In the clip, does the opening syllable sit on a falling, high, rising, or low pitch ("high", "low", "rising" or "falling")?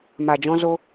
low